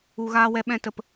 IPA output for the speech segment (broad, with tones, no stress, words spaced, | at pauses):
u˨ɣaː˧wɛ˧ ɓɛ̃˦tə˧p